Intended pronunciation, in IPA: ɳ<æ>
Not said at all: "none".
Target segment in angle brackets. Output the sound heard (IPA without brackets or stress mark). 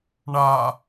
a